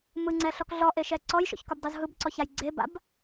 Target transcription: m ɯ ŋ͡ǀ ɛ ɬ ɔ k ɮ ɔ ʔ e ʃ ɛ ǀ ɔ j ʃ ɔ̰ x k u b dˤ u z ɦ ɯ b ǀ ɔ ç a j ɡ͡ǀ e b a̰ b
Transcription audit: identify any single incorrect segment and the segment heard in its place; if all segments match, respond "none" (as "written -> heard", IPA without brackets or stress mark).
x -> ç